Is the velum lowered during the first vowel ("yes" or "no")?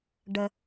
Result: no